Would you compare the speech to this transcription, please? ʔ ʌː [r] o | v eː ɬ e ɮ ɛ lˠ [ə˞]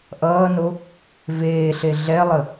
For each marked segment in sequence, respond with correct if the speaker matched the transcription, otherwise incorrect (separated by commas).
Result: incorrect, incorrect